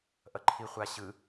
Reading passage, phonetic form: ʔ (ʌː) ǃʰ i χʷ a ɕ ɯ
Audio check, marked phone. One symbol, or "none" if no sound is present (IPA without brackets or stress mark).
ʌ